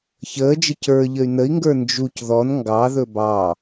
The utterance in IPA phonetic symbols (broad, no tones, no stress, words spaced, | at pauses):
çəːd͡ʒə cə˞ʎəy̯ nəi̯ŋɡə˞ nd͡ʒuc ðɔn ŋɡɑðɵ bɑ